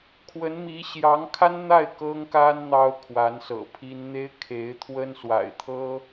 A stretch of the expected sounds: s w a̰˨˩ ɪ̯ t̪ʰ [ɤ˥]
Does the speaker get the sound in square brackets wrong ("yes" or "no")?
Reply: no